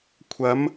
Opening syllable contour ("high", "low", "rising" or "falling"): rising